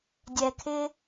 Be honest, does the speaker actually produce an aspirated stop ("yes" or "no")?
yes